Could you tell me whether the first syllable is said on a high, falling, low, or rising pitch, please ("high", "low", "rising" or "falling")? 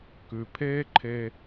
low